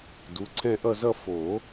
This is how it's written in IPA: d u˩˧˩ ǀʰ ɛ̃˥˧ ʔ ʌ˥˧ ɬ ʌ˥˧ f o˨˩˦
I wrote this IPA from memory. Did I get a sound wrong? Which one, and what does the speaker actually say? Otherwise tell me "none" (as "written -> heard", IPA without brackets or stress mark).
ɬ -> z